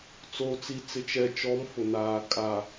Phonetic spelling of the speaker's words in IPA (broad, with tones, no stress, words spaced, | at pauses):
t͡soː˨t͡si˨t͡sɪ˨ t͡ʃɛ˨t͡ʃɔ˨˦m fʊ˨naː˨ kʼa˨